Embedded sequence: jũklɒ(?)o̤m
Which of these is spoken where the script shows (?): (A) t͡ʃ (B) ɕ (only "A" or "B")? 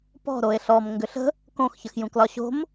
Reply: B